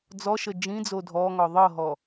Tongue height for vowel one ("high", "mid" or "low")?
mid